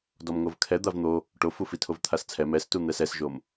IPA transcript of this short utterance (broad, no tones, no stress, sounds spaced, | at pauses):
d ɔ m ŋ o v kʰ ɛ d̪ a v n̪ o | ʈ o f u f i tʰ o v t̪ʰ a s t͡sʰ ɛ m ɛ s t u n̪ ɛ s ɛ s ʒ o m